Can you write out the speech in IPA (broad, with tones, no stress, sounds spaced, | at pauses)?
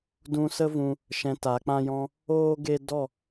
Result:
d ũ˧ s ə˦ v ũ˧ | ʃ ɛ̃˧ t a˨˦ k͡p ã˦ j ɔ̃˦ | oː˦ ɡ e˦ d ɔ˦˨